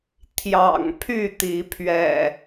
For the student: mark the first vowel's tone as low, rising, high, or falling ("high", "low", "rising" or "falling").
low